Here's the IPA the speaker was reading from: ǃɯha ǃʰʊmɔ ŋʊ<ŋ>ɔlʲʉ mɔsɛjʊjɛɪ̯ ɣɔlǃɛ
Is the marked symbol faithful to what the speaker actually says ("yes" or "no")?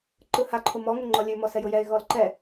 no